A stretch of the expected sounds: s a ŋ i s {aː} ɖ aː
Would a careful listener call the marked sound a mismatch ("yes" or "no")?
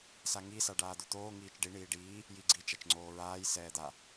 yes